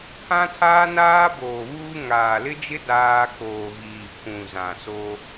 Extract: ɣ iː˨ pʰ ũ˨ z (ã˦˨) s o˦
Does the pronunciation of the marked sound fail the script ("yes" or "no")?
yes